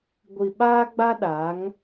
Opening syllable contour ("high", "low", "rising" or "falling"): low